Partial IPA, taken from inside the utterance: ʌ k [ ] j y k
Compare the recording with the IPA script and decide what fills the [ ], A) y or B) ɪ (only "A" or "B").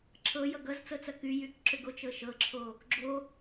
A